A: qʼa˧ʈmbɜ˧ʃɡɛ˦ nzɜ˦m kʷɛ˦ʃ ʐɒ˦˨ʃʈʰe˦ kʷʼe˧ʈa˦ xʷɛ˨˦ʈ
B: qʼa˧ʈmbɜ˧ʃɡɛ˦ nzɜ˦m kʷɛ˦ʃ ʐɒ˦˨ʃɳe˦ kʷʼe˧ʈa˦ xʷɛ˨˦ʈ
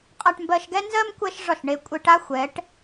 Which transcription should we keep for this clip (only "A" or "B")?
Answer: B